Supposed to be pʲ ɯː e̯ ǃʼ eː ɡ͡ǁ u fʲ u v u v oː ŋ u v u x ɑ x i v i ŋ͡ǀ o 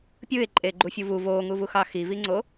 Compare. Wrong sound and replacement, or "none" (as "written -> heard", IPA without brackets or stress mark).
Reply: ɡ͡ǁ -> ɡ͡ǃ